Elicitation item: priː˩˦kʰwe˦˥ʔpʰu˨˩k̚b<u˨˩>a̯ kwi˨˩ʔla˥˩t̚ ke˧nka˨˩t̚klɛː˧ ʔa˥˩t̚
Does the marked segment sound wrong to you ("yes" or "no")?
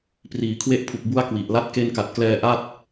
yes